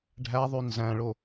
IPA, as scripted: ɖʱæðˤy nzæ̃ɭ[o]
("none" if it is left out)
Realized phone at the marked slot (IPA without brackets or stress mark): o